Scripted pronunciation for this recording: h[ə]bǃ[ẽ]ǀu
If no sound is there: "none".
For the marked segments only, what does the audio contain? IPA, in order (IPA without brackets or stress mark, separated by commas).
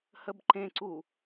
ə, ẽ